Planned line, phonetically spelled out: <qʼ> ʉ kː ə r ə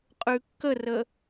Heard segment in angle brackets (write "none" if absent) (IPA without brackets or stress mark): qʼ